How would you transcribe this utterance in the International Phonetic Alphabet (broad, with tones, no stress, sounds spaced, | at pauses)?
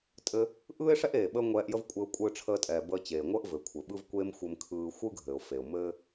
tʼ ɘ˧ | ʔ ɯː˥ ɪ̯ ʂ ɛ˥ ʔ eː˩ ɓ əː˥ ŋʷ ɛː˧ ʔ j ə˥ v kʷʼ ɘː˧ ʊ̯ kʷʼ ɯː˧ ʈ͡ʂʰ əː˧ tʼ ɛː˩ b əː˧ t͡ɕ eː˩ ŋʷ əː˥ ʔ v ɘ˩ kʷʰ ɘ˩ ɓ ɯ˥ v kʷ e˥ m xʷ ɘ˧ m kʰ ɯː˧ xʷ ɯ˥ ɡʱ ɘː˩ ʊ̯ f e˩ ʊ̯ m ɘː˥